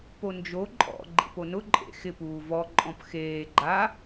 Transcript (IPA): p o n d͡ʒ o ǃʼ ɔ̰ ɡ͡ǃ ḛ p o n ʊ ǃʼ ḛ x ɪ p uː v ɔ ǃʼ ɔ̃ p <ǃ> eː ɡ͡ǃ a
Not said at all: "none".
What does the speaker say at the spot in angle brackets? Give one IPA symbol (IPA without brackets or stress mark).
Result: x